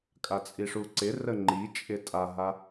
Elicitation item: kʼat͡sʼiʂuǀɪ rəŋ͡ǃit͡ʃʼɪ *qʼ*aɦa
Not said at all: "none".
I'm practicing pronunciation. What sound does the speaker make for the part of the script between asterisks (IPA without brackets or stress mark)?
tʼ